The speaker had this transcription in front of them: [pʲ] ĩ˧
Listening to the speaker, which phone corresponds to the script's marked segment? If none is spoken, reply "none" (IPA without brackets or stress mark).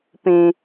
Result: p